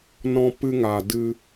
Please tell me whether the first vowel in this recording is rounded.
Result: yes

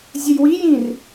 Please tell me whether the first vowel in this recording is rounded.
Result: no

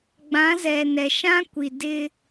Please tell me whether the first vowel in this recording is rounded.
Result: no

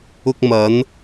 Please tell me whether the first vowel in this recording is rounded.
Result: yes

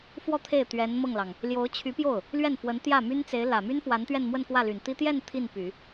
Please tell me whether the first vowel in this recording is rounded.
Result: yes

